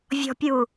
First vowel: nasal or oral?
oral